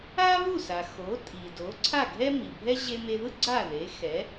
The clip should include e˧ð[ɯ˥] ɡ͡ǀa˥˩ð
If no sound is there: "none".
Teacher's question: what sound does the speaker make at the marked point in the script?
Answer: ɯ˥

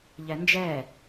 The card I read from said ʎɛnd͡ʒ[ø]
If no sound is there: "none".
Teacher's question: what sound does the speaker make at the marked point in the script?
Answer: ɛ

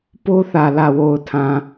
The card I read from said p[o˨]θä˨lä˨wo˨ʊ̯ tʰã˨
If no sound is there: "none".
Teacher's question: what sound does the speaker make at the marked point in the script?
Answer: o˦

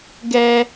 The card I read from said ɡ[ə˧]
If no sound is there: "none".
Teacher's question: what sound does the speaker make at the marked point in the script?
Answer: ɛ˧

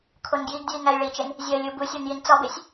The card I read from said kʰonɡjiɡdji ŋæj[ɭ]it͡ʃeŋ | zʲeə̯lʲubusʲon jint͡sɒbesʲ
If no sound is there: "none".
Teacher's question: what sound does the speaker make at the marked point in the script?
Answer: ɭ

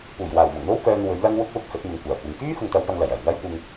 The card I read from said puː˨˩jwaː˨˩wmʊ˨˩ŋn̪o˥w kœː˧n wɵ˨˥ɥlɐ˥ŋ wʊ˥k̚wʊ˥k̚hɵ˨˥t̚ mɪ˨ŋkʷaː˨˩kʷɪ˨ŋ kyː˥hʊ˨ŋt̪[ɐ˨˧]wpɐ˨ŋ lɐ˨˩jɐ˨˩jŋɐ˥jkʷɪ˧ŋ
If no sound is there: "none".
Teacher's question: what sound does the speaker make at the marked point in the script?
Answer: ɐ˨˧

